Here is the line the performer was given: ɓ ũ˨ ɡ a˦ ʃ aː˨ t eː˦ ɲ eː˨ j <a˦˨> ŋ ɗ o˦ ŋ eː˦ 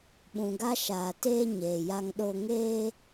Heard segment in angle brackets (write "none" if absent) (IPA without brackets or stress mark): a˦